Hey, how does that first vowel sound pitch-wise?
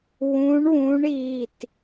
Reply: rising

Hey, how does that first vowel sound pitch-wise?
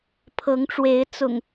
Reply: rising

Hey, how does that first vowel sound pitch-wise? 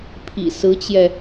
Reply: low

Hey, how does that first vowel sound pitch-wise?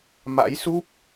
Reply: rising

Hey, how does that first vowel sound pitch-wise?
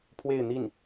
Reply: falling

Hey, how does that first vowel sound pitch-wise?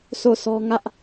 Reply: falling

